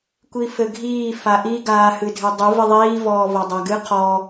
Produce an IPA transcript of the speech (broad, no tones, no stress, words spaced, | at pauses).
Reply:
kʷifɘɡʱiː faʔi ɡaːhɨdʱɘdˤɨ vɨðˤiː vɔːvɔdˤaɡɨ qʰɔ